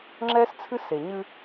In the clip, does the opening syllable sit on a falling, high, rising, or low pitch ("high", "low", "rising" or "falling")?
high